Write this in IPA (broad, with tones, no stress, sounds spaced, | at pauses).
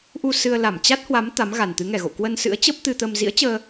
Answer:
ʔ u˧ s ɨ˧ ə̯ l a˧˩ m t͡ɕ a˦˥ t̚ h w a˨˦ m t̪ a˨˦ m ɣ a˨˩ n t̪ ɨ˨˦ ŋ ɛ˨˩ ɣ o̰˧˨ k w ə˧ n s ɨ̰˧˥ ə̯ t͡ɕ ə˦˥ p̚ t̪ ɨ˧ t̪ ə˧ m z ḭ˧˥ ə̯ t͡ɕ əː˧